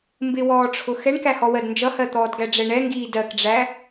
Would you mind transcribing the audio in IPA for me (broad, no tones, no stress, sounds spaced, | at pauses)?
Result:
m b ɪ w ɔː ʈ͡ʂʰ ʊ x ɛ ɳ k æ h ɔ w ɜ d n d͡ʒ ʌ h ɜ t̪ ɔː d ɡ æ ɖ͡ʐ ɛ ɳ ɛ ŋ ɡ iː d ɜ k ɖ͡ʐ æ